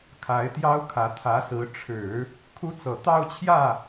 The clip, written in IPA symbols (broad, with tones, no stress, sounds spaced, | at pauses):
kʰ a˧˥ ɪ̯ t̪ j ɑ˥ ʊ̯ kʰ ä˧˥ t̪ʰ ä˧˥ s ɹ̩˧˥ ʈ͡ʂʰ ɻ̩˨˩˦ | kʰ u˥ t͡s ɤ˨˩ t̪ ɑ˥˧ ʊ̯ t͡ɕʰ j ä˥˩